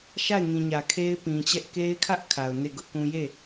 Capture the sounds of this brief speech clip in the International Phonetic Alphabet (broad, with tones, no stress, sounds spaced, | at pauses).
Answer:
ʃ a˦˨ ɪ̯ ŋ ĩ˨ ɲ ä˨ kʰ e˦ ɪ̯ p ĩ˨ t͡ɕ ɛ˦ ʔ k e˦ ɪ̯ kʰ ä˦ ʔ kʰ a˨ ʊ̯ n e˦˨ ɡ ʊ˦ ʔ k ũ˦ j e˦˨